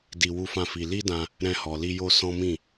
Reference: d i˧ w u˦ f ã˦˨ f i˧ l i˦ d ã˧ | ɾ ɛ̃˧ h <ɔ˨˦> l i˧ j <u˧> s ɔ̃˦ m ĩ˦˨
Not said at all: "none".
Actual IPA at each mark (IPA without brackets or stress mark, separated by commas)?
ɔ˨, o˧